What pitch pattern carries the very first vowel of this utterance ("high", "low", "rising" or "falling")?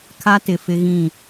high